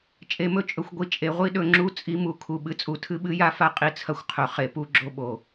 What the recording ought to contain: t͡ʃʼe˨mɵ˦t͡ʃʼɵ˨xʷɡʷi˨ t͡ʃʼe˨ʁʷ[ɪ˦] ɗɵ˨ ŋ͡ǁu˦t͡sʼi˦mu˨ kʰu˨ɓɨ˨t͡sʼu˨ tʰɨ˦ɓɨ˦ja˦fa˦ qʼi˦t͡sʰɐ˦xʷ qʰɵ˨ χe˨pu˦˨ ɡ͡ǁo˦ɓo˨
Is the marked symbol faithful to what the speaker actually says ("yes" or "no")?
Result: no